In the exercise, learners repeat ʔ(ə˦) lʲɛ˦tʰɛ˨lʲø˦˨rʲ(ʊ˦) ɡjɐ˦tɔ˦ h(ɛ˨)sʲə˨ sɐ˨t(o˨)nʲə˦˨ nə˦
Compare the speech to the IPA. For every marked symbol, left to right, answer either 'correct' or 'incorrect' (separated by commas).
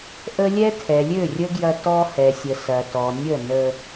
correct, incorrect, correct, incorrect